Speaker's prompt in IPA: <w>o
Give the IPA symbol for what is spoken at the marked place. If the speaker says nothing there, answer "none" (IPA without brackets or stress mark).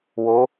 w